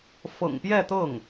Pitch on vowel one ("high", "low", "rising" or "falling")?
low